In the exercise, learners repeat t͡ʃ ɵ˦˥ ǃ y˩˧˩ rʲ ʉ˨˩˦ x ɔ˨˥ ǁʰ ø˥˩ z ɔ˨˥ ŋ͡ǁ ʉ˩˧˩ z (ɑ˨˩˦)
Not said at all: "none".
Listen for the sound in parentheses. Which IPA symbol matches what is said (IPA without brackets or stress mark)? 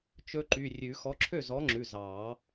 ɑ˨˩˦